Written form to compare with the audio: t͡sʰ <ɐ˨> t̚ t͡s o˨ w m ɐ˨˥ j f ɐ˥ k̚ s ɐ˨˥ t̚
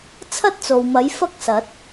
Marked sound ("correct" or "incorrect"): incorrect